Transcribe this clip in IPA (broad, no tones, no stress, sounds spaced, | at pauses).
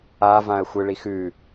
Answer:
a v ã ə̯ xʷ ɨ ɭ i x ʉ